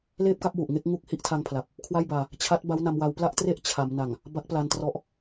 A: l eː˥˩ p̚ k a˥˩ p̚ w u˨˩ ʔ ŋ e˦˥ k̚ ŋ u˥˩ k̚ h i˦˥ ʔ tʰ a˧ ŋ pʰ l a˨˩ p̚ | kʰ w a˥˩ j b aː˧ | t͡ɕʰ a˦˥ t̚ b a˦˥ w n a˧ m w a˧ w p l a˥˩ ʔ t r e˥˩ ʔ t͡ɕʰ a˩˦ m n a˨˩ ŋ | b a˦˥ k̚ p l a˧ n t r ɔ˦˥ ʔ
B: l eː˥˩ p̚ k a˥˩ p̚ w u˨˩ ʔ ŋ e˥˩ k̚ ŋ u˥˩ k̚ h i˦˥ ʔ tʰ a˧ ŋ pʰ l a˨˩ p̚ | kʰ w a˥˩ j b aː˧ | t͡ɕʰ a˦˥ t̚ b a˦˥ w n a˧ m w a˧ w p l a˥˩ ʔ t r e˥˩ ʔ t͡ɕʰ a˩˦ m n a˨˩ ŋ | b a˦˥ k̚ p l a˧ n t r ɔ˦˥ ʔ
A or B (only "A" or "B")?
B